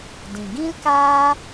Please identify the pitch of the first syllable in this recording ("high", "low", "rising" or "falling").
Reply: low